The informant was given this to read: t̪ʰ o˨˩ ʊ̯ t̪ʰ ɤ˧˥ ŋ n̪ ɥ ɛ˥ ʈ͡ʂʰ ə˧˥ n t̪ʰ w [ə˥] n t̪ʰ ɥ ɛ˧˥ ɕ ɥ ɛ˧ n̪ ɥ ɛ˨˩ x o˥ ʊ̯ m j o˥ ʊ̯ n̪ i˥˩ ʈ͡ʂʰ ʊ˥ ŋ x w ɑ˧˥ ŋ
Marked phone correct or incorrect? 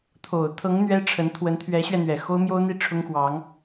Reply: incorrect: ə˧˥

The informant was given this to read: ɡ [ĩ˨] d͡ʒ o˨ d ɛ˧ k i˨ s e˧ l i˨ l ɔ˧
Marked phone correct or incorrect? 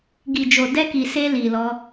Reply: incorrect: i˨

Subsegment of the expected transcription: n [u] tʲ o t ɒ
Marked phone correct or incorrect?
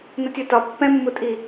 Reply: incorrect: o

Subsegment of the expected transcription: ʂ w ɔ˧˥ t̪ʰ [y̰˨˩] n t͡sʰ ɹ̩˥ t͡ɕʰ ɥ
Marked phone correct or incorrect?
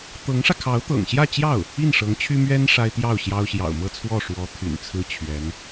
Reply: correct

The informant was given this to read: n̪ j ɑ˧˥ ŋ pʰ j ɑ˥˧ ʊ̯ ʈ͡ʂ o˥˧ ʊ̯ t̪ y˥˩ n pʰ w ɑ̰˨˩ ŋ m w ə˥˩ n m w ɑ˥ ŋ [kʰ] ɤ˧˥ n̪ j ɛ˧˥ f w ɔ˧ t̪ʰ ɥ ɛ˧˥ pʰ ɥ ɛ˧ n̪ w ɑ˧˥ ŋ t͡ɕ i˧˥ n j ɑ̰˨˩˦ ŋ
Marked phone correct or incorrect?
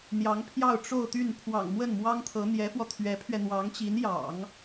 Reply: incorrect: t̪ʰ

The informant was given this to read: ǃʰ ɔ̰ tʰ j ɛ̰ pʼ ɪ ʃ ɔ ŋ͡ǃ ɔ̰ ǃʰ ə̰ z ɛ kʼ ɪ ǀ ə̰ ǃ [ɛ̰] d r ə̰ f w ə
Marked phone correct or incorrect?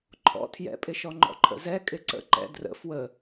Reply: correct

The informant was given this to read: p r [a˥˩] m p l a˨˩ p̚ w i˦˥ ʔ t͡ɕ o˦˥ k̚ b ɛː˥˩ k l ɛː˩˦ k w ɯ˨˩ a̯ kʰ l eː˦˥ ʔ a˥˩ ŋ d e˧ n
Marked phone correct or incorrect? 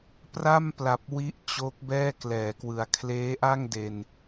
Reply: correct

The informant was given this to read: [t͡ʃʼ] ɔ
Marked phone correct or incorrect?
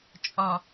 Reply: correct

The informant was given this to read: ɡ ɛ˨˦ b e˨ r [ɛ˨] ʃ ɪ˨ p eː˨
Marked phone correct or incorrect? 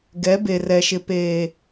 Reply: correct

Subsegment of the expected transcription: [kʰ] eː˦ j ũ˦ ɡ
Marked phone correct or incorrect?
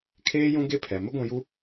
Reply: correct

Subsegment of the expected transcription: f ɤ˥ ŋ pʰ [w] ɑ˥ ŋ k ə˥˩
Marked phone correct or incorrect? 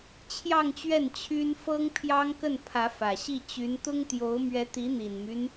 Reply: incorrect: j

